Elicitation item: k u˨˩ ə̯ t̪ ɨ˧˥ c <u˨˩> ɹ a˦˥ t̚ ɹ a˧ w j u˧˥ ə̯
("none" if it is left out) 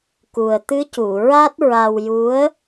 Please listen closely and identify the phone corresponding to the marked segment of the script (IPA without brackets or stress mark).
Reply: u˨˩˨